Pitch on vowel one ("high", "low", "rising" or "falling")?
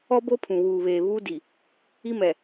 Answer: high